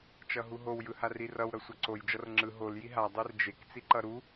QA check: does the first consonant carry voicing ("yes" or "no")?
no